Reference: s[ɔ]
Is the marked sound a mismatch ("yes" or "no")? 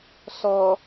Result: no